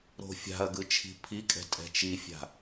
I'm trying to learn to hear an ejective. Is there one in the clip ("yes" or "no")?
yes